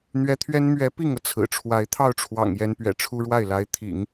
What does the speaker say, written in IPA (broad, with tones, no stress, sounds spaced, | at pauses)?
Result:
n̪ ɥ ɛ˧˥ t̪ʰ ɥ ɛ˥ n m ɥ ɛ˧˥ p i˥˩ ŋ ɤ˩ t͡sʰ ɹ̩˨˩ ʈ͡ʂʰ w a˧˥ ɪ̯ t̪ʰ ɑ˥˩ ʊ̯ ʈ͡ʂʰ w ɑ̰˨˩ ŋ j ɛ˧˥ n p ɥ ɛ̰˨˩ ʈ͡ʂʰ u˥ ɻ w a˥˩ ɪ̯ l a˧˥ ɪ̯ t̪ʰ ḭ˨˩˦ ŋ